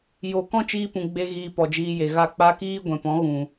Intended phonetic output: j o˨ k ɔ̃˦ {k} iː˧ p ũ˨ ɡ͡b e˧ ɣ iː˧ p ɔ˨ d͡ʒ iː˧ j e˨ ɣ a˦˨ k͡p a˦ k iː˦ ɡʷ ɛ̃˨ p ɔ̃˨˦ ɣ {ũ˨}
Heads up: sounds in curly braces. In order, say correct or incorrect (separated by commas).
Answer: incorrect, correct